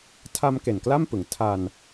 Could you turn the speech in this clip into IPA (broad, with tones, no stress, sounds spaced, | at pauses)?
tʰ a˧ m k e˨˩ n k l a˥˩ m p ɯ˩˦ ŋ tʰ a˧ n